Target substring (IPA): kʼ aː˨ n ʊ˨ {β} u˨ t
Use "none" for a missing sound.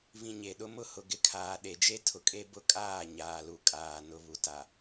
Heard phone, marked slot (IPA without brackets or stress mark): β